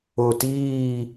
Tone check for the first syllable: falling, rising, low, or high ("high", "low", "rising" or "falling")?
low